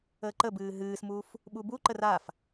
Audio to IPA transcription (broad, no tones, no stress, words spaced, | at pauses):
əːǃəbɨː ɦɨːsmuːf | ɓubuǃər af